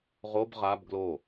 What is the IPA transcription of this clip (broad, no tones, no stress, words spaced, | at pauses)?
ʁob ʁab ɡlo